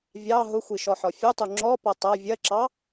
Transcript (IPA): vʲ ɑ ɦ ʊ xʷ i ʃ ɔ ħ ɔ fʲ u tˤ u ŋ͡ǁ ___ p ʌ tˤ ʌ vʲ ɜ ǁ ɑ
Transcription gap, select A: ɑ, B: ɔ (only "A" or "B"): B